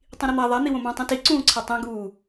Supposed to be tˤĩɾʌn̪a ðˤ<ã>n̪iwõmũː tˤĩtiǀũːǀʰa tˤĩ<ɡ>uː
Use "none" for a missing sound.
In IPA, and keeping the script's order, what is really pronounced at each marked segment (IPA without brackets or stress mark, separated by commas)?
a, ɡ